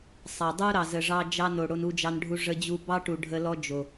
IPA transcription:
sˤɑ˨ dˤu˦ɾɑ˨zə˨ʐɑ˧ d͡ʒɑ˧no˨ ɽo˧nu˧d͡ʒɑ˧nɖʱu˧ ʐə˧d͡ʑu˧ bɑ˦ʈu˨ ɖʱə˧lɔ˦d͡ʒo˨

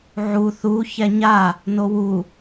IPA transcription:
ʕu θu çɛɲa | nowu

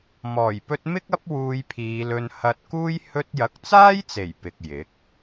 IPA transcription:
mɔː˨˩jpɵ˧t̚ mɪ˥k̚ɐ˥p̚ wuː˧jpʰiː˨˧lɵ˧n hɐ˧t̚kuː˥j hɵ˧t̚jɐ˨˥k̚t͡saː˥jt͡se˨˩j pɪ˨k̚ jɪ˨˥k̚

